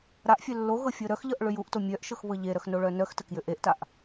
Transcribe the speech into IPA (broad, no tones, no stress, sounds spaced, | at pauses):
ɾ a ʔ fʲ œ lː o ɣ ɤ fʲ ɤ ɾ œ x ʎ ɤ ʔ ɭ ʏ j u ʔ t o mʲ œ ʔ ʃ ɤ x β ɤ ʎ e ɾ œ x n o ɭ œ n œ x t ə k j ʏ ʔ e ʔ t a ʔ